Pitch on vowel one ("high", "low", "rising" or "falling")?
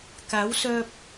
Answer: rising